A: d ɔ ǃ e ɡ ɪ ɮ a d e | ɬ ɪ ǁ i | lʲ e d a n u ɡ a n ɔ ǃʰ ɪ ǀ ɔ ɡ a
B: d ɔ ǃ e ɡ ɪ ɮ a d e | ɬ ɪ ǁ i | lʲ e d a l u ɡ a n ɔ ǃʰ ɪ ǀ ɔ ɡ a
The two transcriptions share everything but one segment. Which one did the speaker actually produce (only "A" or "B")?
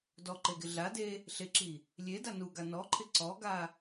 A